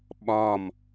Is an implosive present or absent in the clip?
present